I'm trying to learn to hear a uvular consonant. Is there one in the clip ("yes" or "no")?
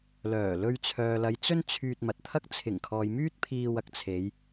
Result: no